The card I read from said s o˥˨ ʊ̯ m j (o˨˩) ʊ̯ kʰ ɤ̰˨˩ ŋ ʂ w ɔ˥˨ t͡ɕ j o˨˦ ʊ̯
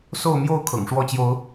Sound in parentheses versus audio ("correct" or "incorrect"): incorrect